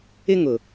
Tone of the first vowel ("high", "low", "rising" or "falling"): high